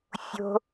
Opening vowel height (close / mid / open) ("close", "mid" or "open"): mid